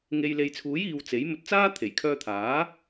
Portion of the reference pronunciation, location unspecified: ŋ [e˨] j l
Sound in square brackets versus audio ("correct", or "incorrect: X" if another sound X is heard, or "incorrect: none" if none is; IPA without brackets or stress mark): correct